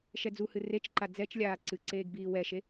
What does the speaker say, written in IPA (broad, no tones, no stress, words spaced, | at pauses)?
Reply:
ʃɛd͡zuhɨ ret͡ʃǃa d͡zɛt͡ʃ lʲaːǀɨǀeːɡ biːwɛʃe